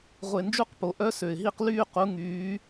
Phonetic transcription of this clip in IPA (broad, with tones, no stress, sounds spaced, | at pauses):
ʁʷ e˨˩ n d͡ʒ u˦˥ q p o˨˩ ʔ œ˦˥ s ø˨˩ ɪ̯ ɦ i˥˨ q l yː˥˨ q u˨˦ ŋ yː˨˦